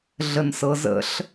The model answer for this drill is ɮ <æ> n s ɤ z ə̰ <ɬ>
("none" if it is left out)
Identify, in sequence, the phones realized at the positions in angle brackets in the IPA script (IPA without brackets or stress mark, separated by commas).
ə, ɬ